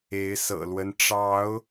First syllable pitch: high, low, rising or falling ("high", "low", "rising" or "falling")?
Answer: rising